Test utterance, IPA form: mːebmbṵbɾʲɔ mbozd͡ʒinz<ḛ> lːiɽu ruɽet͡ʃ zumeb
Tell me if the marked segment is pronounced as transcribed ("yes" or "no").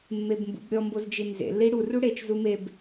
yes